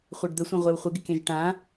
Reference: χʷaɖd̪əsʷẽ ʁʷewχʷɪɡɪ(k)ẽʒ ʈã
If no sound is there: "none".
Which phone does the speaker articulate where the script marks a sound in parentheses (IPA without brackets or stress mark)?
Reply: k